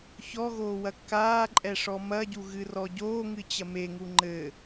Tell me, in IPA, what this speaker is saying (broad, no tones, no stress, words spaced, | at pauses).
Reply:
çɔɣoː wɐkːaːǃʼɛ ʂɔmɐɟu ɣɨrɔɟoːŋɨ t͡ɕɐmeŋu ŋ͡ǃɘ